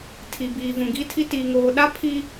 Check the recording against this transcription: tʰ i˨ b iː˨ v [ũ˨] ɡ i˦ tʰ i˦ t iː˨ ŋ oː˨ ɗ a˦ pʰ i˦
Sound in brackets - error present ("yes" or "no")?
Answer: no